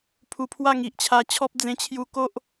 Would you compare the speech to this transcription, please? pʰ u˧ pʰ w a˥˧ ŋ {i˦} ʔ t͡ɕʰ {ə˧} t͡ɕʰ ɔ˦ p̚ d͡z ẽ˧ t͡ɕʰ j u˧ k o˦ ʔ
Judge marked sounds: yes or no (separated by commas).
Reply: no, no